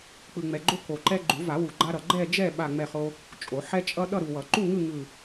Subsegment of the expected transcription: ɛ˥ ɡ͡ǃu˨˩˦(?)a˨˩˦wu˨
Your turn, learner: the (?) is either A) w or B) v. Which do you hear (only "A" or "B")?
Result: B